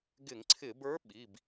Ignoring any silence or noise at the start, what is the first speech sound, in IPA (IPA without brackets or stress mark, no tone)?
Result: ɡ